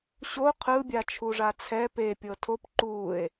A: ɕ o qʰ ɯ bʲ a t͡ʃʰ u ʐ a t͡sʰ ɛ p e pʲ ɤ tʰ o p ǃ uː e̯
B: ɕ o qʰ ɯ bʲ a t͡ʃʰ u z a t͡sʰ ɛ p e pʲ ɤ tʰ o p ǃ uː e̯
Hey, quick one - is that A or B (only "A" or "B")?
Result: A